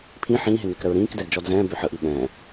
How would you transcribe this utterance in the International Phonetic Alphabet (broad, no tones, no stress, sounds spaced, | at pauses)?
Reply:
pʰ ĩ ħ ĩː ɦ e n ø k ɾ ə ɹ ɾ ĩː k d ɛ d d͡ʒ ɔ d z ɛ̃ː b ø ħ ə ʔ i ɠ ɛ̃ː